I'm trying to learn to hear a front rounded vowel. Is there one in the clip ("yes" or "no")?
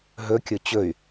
yes